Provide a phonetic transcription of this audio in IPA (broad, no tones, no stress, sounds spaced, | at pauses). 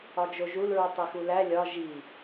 ɒ d͡ʒ o ʒ u l ɹ u tˤ i x u l æ lʲ ɒ ʒ i